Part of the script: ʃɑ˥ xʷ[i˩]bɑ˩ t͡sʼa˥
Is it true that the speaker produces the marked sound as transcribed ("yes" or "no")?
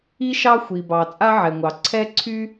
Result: yes